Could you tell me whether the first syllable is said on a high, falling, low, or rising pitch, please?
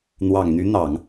low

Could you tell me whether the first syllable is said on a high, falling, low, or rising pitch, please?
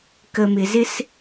low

